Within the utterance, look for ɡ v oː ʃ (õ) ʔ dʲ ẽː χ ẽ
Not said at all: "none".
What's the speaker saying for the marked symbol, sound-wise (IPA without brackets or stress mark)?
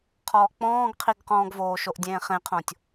o